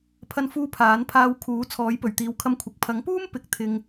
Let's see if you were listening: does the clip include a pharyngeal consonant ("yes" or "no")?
no